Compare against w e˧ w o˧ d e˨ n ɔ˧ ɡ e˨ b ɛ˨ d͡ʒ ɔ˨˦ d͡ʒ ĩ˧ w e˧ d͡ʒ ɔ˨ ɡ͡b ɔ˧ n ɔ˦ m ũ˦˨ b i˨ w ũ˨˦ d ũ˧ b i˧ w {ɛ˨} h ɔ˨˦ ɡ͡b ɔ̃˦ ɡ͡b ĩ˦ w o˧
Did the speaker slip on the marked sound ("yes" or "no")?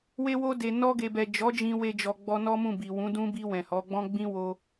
yes